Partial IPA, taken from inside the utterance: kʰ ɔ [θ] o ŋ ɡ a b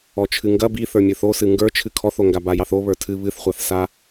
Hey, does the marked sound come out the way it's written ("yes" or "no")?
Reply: yes